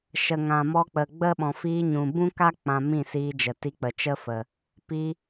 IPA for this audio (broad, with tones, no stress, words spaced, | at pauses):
ʃə˨ŋã˨mɔ˧k͡pə˨ ɡ͡bə˦ ɓɔ̃˨fiː˧ɲũ˨ bũ˦ka˦ k͡pã˧mĩ˦˨siː˧d͡ʒə˨ ti˧k͡pə˨t͡ʃə˦fə˨ | pi˧